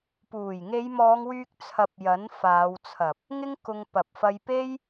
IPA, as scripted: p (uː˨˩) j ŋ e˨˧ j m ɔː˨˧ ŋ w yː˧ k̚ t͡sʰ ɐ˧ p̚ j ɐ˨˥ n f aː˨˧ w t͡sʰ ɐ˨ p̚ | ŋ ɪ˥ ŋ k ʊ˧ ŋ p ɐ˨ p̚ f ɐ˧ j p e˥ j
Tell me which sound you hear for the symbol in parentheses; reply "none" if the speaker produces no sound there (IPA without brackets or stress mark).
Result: uː˨˩